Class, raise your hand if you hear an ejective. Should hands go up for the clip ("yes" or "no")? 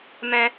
no